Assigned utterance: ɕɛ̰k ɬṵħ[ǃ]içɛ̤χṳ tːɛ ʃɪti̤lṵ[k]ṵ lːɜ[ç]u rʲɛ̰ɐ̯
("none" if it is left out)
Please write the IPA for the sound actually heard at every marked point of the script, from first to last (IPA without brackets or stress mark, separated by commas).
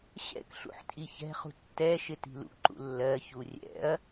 tʼ, ǃ, ç